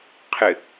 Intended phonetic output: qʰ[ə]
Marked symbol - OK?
no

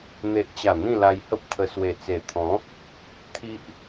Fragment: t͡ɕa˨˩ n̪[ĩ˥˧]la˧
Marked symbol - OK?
yes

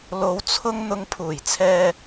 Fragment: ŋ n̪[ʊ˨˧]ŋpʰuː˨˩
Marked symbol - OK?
no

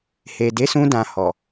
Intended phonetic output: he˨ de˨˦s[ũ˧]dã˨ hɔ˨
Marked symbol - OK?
yes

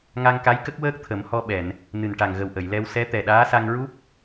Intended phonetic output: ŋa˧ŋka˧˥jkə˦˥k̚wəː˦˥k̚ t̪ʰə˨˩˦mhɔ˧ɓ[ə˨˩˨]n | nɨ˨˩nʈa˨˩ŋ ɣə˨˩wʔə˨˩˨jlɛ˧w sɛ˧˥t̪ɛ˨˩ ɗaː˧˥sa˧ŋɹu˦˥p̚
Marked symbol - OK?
no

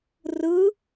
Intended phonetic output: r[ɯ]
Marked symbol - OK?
yes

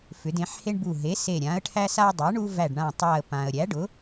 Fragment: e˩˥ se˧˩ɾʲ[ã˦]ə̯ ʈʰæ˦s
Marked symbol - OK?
no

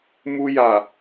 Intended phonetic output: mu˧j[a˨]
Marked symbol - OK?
yes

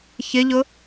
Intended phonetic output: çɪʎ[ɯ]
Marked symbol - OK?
no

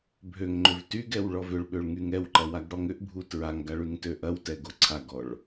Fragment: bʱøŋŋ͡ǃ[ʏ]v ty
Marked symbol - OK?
yes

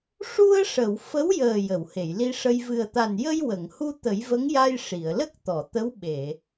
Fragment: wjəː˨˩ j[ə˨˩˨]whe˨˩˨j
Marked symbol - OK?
yes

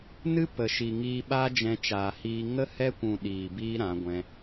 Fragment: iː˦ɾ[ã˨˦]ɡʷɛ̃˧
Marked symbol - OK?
yes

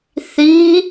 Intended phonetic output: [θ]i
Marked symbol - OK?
yes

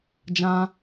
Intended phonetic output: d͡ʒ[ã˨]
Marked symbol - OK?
no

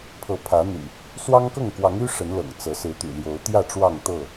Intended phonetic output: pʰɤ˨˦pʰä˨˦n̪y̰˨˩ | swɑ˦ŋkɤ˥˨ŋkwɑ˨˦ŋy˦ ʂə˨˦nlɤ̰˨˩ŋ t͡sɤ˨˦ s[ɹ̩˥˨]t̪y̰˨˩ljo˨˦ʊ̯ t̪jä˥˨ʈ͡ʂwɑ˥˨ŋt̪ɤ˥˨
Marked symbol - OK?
no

